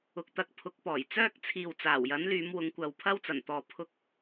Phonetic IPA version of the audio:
ʊ˨˥k̚t̪ɐ˨˥k̚pʰʊ˨˥k̚ pɔː˨˩jt͡sœː˥k̚ t͡sʰiː˨w t͡saː˨˩wjɐ˨˥nlyː˨˧m wʊ˨˧ŋkʷɐ˨wpʰɐ˥wt͡sɐ˨˩n t̪ɔː˨ pʰʊ˧k̚

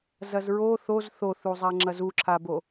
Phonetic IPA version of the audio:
zɐzɹo θoz θoθuzˤa ŋ͡ǁɐzuǁʰabo

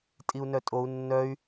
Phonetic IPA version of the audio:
tʼiu̯nœtʼou̯ nːœy̯

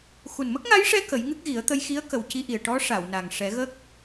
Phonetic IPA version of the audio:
xu˨˩nmə˦˥k̚ŋa˧˥jʂɛ˧ kə˨˩˦jŋɨ˦˥k̚ɣi˨˩˦ə̯t̪ə˧j xi˧˥ə̯kə˨˩wci˧ʔi˨˩ə̯ ʈɔ˧˥ ʂa˨˩˨wna˨˩ŋʂɛ˨˩˦ɣə˦˥k̚

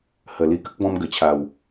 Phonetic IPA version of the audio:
hə˨˩li˧kə˦k̚ bɔ̃˧mɡə˨˩t͡ɕʰa˨˩w

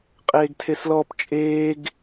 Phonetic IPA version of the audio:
qʼeːɡtʰeslɔp t͡ʃʼeːɡ

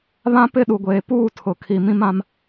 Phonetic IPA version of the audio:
βã˦ pɪ˦˨ɗu˨ɡʷeː˨puː˦˨ tʰʊ˨kʰi˨ mĩ˦mã˦m

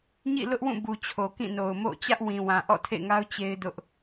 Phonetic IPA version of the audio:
ɲḭ˦˨lʊ˦ʔwũ˦˨ bu˨t͡ɕʰo˨kĩ˦˨no˨ʊ̯ mo̰˦˨ t͡ɕä˦ʔwĩ˨wã˨ ʔɔ̰˦˨tʰḛ˦˨ŋa˦ʊ̯ t͡ɕe˦ɪ̯ dʊ˦ʔ

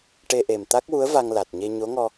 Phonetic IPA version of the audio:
ʈe˧ ʔe˨˩mt̪a˦˥k̚wu˧˥ə̯ va˧ŋla˨˩t̚ɲe˧ ɲo˧˥ŋɔ˧

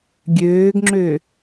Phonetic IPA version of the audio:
ɡʲøːɡŋ͡ǁø

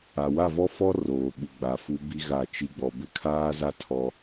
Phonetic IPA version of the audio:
a˨wa˦˨ vɔ˦fɔ˦ roː˨ɓu˨ɡ͡ba˨ fu˦bi˦ɣa˦˨t͡ʃi˦ ɡ͡bɔ˨bɪ˦kʰaː˦za˦ tʰɔ˦

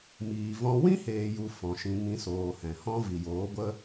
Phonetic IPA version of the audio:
miː˨vɔ̃˧ wĩ˦heː˨ju˨ fɔ̃˨ʃĩ˧ ŋĩ˧soː˨hɛ̃˨hɔ̃˦ vi˨joː˨˦ɡʷə˦

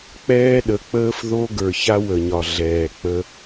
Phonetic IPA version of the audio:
k͡pɛː˦ɗə˨˦k͡pəː˦f ðo˦ɡə˞˨ ça˦wə˨ɲɒ˨ ɮɛː˨k͡pə˦

